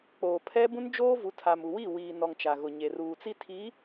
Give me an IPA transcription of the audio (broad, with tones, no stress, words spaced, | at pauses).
k͡poː˨pʰɛ˦ bũ˦nd͡ʒoː˦vu˨˦tʰa˨m u˨wi˦˨ wiː˨nɔ˨ŋ t͡ʃa˨ɣʊ˨ɲe˨ ruː˨t͡si˦ tʰi˨˦